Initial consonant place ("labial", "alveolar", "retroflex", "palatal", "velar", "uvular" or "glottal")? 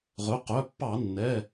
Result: uvular